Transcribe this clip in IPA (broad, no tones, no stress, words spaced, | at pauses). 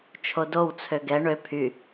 t͡ʃʰodow t͡sʰøɡɛ ɳø pʰy